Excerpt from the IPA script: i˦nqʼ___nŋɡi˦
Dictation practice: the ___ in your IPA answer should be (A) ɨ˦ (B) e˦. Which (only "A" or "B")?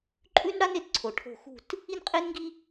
B